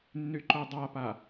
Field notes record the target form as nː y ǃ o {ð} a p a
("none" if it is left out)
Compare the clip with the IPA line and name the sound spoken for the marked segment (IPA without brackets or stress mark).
dˤ